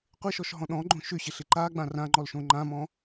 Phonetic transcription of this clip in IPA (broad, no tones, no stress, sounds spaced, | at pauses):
qʷ ɪ ʃ ɔ ʃ ɦ ɔ̃ ɗ ɔ̃ ɡ͡ǃ õ ʃ ʏ ɕ ɪ ɬ ɪ ǃ a ɡ͡b ã r ã ŋ͡ǃ ɔ l ʃ õ ŋ͡ǃ ã m ɔ̃